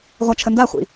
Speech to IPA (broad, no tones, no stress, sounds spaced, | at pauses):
ʁʷ a t͡ʃʰ ə n d a χʷ ḭ